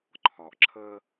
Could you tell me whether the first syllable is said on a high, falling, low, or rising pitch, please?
low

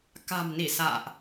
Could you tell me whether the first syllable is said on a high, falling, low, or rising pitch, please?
low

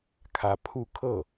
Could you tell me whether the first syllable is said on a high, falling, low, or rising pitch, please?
rising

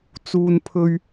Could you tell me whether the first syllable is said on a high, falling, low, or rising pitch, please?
low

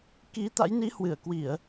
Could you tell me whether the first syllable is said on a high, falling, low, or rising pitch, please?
rising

